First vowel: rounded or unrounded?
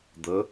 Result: unrounded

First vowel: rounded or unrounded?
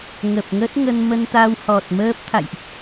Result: unrounded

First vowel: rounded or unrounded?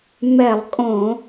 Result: unrounded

